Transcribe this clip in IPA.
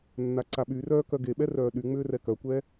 nː a ǀ a ɓ y r œː k œ ɡ e ɓ ɛ r œː ɗ y ŋ͡m ʏː r ɛ k œ kʷ ɛ

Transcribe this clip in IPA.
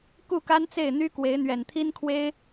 k u˥˩ k a˥ n t͡s e˥˩ ɪ̯ n̪ y˥ k w e˧˥ ɪ̯ n̪ ɥ ɛ˨˩ n t̪ʰ i˥ n kʰ w e˥ ɪ̯

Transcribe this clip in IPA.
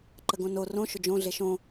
ǃ ə ɡ õ n o r õ ʃ ʊ d͡ʒ õ ɮ e ʃ õ

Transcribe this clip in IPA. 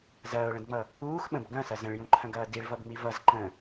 z ɐː ʊ̯ ɭ ə̃ d ŋ͡m ʌ | uː x ɓ ə̃ b ɡ ɐ̃ s ɐ z ə̃ ɭ j ũ ǃʰ ɐ̃ ɡ ɐː d i ɭ v ʌ b ŋ͡m i v ʌ z ǃ ə̃

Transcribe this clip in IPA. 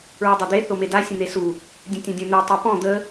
ɹ u dˤ œ d̪ e θ o m e d a sʲ ə̃ n̪ e s u | dʲ ə̃ tʲ õ dʲ õ n̪ ø tˤ o p ɔ̃ d̪ ə

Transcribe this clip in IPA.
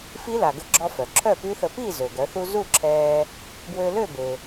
f i˦˥ l a˩ ɡ ə˧ ɡ͡ǁ ɔ˧ f œ˩ ǁʰ œ˥˨ p y˦˥ θ ə˧ p i˥˨ z ø˩ ɡ œ˩˧ θ u˧ z u˥˨ ǁʰ ɛː˧ | b w ø˧ l ø˥˨ b e˩

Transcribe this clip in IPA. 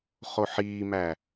χ o ħ iː m æ

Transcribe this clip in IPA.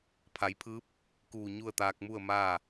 pʰ a˩˧ j pʰ ɯː˧˥ p̚ | k uː˧˩ ɲ u˥˨ ə̯ t̪ aː˧ k̚ m u˥˨ ə̯ m aː˥˨

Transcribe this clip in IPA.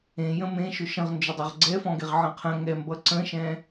ẽ j ə̃ m ẽ ʃ ʊ ʃ ə̃ ʁ n d͡ʒ ʊ dˤ ʌ ʁ ɡ͡ǀ ɛ f ɔ̃ ɡ e ʁ ʕ ə̃ qʰ ə̃ ŋ ɛ m b ʌ ǀ ə̃ ʃ ɛ̃

